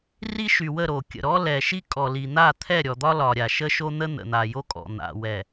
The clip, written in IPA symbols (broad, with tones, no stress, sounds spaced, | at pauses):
r i˦ ʃ y˨ w ə˦˨ ɾ o˨ kʲ ə̰˨ ɾ ɔ˦ l ɛ˨ ʃ i˦ kʼ ɔ˨ l i˨ n̪ a˦˨ t̪ʰ ɛ˦˨ ɾʲ ɔ˨ d̪ ɒ˦ l ɒ˨ ɾʲ a˨ ʃ ə˦ ʃ o˦ n̪ ə˦ n̪ ə̰˨ n̪ a˨ j o˦ kʼ ɔ̰˨ n̪ a̰˨ w ɛ˨